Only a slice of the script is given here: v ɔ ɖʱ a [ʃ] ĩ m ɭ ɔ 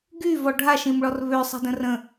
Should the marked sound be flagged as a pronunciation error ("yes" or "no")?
no